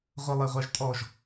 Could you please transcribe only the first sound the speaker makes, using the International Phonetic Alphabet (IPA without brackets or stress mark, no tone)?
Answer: ʁʷ